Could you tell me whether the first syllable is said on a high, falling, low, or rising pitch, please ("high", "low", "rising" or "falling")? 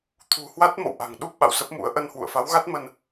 low